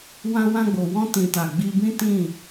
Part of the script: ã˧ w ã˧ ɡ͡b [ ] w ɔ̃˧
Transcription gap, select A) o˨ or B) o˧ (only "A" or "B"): A